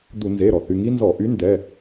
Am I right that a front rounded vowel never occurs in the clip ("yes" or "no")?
no